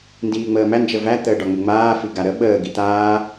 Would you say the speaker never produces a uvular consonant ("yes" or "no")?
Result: yes